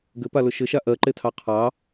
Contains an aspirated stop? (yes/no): yes